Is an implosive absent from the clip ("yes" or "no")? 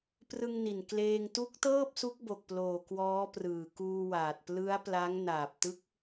yes